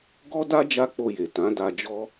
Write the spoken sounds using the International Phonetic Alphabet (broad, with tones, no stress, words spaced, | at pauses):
ɡɔ˦da˦ d͡ʒa˦k͡po˧je˨ tã˨˦da˧d͡ʒɔ˦